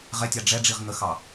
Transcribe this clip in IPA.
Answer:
ʁ ɛ tʲ ɑ ɖ͡ʐ ɛ ɖ͡ʐ i ʁ ŋ ə x ɑ

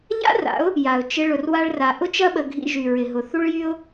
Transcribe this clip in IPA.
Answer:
ʎ a̰˦ r a̰˨˦ ʊ̯ | j a˨ ʊ̯ t͡ʃ ɪ˧ ɭ ʊ˧ r w a˦ ɭ r a˧ ʔ ʊ˦ t͡ʃ ɐ˦ ɓ ə˧ ɡʱ ḭ˧ ʒ y˨ ɹ ɪ˨ ɦ ʊ˨ θ u˦ ɭ j y˦ ʊ̯

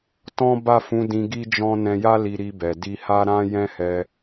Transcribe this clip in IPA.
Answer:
t ɔ̃˦ b a˦˨ f ũ˨˦ d ĩ˧ ɡ i˦ d͡ʒ ɔ̃˦ n ɛ̃˧ j a˦ l i˧ ɾ i˧ b ɛ˨ d i˧ h a˦ ɾ ã˦ j ɛ̃˦ h ɛ˧

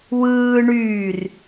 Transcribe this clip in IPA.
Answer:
w ɯː ɳ yː r

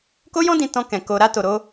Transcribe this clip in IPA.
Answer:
k o˦ j ɔ̃˦ d ĩ˧ t ɔ̃˧ k ɛ̃˨ k o˧ ɾ a˦ t o˧ ɾ o˦

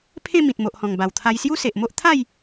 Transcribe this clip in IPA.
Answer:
pʰ ẽ˥˧ m ĩ˨ t̚ m o˨ ʔ h ɔ̃˨˩ ŋ b a˨˩ w t̪ʰ a˧ j s j u˦ s e˨ ʔ m o˦ ʔ t̪ʰ a˥˧ j

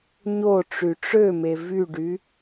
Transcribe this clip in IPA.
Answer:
ɲ o ʈ͡ʂ y ʈ͡ʂ ø m e v y ɖ y

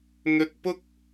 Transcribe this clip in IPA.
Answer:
n̪ ɵ˧ t̚ p ʊ˥ k̚

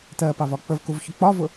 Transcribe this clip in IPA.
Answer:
t ɜ p ɑ v ɒ k͡p ə v k u v ç ʊ k͡p ɒ v ʊ

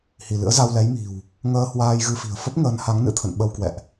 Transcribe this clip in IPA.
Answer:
h i˧˩ l ɨ̰˧˥ ə̯ z a˧ w l ɛ˨˦ j m i̤˨˩ w | ŋ əː˧ h w aː˧ j ɣ ɨ˧ f i̤˨˩ ə̯ f ə˦˥ p̚ ŋ əː˨˦ n h a˨˦ ŋ n ɨ̰˧˥ t̪ʰ ə̰˧˨ n ɓ ə˧ w k w ɛ̰˧˨ ʔ

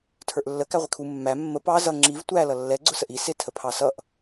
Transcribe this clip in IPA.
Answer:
tʰ ə˞ ʔ lː ə k æ ʁʷ ɪ kʰ u mː æ mː ə p ɑ z ʌ ŋ͡ǁ i v tʷ æ l ʌ lː ɛ ɡ͡ǀ ʊ s ə ʔ i s ɪ tʰ ə pʰ ɑ s ʌ ʔ

